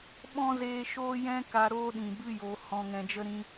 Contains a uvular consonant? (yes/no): no